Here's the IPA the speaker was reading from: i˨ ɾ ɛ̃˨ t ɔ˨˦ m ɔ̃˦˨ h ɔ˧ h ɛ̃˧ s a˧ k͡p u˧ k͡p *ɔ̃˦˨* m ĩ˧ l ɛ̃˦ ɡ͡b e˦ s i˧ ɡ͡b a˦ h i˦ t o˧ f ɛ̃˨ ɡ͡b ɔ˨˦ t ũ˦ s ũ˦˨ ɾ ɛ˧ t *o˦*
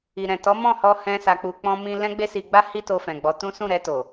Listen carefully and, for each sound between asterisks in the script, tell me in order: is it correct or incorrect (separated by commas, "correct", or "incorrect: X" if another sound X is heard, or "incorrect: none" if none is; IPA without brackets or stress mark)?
incorrect: ɔ̃˧, incorrect: o˨